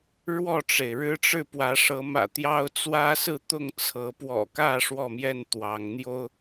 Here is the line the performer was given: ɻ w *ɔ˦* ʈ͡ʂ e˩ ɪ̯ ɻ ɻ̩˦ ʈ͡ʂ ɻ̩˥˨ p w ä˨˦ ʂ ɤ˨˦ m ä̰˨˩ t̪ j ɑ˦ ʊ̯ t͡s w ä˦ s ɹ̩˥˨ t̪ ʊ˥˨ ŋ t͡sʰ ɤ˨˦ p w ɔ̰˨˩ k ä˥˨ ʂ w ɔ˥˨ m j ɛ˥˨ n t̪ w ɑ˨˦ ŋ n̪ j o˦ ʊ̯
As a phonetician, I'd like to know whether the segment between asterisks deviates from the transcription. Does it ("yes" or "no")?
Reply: yes